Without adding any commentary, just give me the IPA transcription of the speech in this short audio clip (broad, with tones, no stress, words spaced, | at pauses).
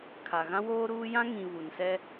kʰa˨ ɣã˦woː˦ɾuː˦ jã˦ŋĩ˨ βu˨nsɛ˦